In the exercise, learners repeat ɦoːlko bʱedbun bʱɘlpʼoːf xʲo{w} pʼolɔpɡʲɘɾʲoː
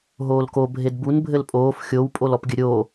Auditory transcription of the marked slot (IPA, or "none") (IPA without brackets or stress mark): w